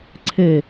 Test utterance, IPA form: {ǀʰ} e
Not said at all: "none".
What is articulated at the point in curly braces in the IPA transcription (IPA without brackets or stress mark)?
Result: ǀʰ